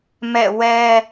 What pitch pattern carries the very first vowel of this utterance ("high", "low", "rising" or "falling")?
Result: falling